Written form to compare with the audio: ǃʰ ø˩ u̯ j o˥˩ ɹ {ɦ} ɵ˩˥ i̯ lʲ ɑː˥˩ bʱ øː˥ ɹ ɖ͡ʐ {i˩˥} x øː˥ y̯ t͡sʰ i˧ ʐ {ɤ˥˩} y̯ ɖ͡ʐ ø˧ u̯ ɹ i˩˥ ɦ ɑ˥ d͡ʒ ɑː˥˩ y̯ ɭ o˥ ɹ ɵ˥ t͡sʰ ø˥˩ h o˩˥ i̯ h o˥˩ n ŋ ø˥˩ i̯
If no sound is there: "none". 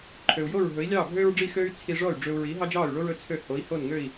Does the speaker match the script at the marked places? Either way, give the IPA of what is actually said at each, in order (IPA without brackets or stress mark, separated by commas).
ɦ, i˥˩, ɔ˥˩